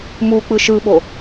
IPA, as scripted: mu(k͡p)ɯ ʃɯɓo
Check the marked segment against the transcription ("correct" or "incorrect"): correct